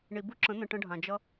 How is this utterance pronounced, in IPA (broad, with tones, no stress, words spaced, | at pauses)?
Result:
ɳi˨bu˦ǁə̃˨˦n̪ə̃˨ ʈə̃˦ɖʱã˨ d͡ʒʌ˦